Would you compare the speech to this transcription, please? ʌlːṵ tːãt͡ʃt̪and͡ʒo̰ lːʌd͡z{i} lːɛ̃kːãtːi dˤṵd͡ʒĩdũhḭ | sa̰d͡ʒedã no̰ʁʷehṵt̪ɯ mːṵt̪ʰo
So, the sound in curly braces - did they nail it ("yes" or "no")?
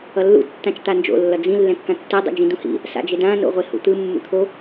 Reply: no